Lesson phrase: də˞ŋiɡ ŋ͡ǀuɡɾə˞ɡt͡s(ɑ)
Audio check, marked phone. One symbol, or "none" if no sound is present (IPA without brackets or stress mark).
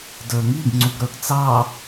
ɑ